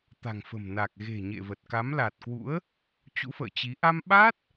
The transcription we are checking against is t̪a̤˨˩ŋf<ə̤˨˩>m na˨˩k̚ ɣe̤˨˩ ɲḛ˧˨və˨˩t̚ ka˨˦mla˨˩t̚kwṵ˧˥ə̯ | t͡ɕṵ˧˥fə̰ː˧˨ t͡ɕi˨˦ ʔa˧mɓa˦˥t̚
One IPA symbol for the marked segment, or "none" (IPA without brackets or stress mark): ə̤˨˩